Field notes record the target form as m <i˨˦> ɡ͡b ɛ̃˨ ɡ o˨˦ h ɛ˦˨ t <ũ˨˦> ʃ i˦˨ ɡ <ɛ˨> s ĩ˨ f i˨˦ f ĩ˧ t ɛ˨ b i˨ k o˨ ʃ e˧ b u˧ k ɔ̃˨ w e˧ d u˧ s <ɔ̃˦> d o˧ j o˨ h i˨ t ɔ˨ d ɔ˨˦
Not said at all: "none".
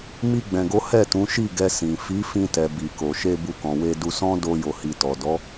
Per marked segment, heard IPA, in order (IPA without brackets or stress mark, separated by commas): i˧, ũ˨˦, ɛ˧, ɔ̃˦